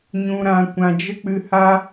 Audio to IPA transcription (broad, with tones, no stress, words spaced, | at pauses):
ɲũ˨ɾã˨ kʷã˨d͡ʒə˦k͡pɨ˧ha˦